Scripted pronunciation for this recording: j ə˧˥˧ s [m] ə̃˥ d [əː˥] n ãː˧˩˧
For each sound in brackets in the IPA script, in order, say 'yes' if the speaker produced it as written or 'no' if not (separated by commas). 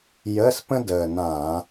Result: no, no